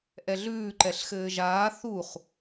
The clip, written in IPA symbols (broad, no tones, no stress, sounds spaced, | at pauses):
ʔ ɛ ɮ ʉː ǃ ɛ ɬ x ɘː ʒ aː θ u χ